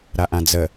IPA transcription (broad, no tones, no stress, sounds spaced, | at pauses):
ɾ a ʔ ã d͡z ə